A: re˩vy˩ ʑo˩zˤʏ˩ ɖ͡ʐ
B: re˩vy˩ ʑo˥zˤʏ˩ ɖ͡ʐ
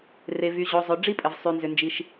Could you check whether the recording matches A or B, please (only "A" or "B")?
A